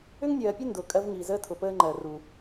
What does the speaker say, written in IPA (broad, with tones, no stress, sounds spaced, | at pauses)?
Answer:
ʏ˦ ŋ nʲ ɜː˨ pʲ ʉ˦ n d ʊː˨ kʼ ɜ˦ v ŋ iː˨ z əː˦ tʰ ʊ˨ p əː˦ ŋ͡ǃ ɜ˨ r u˨